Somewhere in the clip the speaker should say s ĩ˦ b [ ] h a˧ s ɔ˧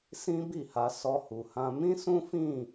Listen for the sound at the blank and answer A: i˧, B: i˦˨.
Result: B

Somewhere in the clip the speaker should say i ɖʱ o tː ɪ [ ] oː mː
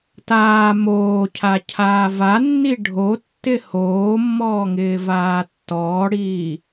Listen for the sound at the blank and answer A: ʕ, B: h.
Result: B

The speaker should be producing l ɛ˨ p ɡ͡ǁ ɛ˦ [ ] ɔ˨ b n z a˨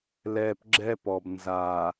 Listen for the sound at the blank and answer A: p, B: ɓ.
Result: A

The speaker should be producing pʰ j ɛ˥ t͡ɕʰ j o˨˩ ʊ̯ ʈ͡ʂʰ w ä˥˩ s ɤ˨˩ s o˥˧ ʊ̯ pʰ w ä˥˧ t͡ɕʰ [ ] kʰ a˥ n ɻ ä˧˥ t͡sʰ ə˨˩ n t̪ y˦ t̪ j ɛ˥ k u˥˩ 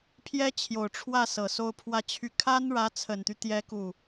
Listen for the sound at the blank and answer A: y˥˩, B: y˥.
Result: A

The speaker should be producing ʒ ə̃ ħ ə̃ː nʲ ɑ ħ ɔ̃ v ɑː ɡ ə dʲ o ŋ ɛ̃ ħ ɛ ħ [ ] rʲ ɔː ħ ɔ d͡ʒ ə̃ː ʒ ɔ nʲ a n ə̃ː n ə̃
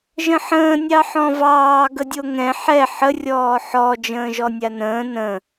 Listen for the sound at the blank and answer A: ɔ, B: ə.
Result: B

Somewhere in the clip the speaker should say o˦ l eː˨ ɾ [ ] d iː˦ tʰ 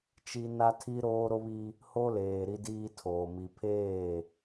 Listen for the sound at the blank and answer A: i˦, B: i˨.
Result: A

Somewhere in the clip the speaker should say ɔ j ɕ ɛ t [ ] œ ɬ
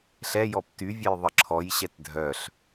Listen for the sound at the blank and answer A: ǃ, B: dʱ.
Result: B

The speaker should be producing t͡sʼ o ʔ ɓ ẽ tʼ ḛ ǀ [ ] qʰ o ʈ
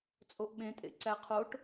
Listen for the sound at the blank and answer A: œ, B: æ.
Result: B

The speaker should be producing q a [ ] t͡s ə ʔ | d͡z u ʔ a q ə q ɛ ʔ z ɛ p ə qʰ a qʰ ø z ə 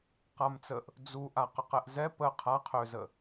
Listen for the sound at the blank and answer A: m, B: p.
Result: A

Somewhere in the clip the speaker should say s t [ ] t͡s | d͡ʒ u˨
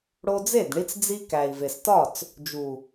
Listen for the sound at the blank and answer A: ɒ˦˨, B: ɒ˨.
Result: A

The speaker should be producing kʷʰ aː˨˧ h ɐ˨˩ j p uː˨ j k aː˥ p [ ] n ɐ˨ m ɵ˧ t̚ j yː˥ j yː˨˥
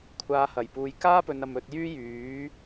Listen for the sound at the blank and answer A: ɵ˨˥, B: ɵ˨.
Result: B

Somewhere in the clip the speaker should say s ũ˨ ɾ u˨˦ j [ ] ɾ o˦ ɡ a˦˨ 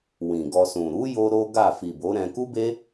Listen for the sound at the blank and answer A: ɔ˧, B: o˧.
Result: B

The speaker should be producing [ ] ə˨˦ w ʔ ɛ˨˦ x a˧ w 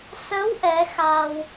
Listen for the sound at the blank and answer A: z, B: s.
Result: B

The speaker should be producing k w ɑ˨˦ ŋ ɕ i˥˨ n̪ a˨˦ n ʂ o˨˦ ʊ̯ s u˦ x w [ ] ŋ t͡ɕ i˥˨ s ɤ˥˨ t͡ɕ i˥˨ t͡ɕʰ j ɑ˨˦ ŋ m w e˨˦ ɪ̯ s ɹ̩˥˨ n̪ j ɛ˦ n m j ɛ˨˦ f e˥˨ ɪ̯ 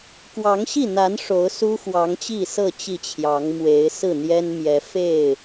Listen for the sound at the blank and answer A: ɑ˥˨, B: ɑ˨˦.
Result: B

